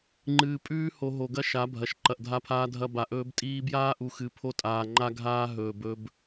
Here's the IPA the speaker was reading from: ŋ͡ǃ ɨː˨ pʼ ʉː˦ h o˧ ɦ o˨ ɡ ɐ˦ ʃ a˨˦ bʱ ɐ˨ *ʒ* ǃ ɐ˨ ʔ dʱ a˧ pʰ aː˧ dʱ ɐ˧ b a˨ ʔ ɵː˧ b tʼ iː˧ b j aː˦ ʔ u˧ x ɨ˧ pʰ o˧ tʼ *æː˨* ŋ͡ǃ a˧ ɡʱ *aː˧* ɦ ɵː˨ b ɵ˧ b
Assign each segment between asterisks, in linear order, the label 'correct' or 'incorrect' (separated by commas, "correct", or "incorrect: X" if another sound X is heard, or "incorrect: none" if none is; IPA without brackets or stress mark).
incorrect: ʃ, incorrect: aː˨, correct